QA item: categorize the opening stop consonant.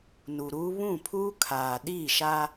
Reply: aspirated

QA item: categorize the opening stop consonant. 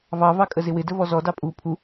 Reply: ejective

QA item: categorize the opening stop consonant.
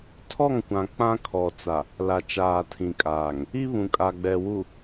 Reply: aspirated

